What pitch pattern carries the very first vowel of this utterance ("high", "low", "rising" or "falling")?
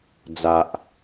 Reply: low